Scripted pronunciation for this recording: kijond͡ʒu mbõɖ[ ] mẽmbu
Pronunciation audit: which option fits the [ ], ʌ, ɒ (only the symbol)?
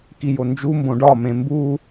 ɒ